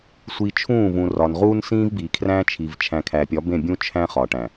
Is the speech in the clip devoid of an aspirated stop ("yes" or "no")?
no